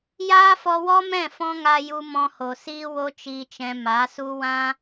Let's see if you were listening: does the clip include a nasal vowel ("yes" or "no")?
yes